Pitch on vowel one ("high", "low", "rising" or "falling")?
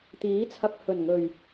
rising